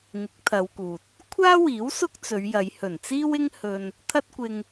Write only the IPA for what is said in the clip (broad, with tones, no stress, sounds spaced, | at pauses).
ŋ ɪ˨˥ k̚ t̪ʰ ɐ˨˧ w k uː˨ t̚ | kʷʰ aː˥ w iː˨˥ w s ʊ˥ k̚ t͡s ɵ˨˧ ɥ j ɐ˨˧ j h ɵ˨˩ n t͡s iː˥ w ɪ˥ ŋ h ɵ˧ n | t̪ʰ ɐ˥ t̚ kʷ ɪ˧ ŋ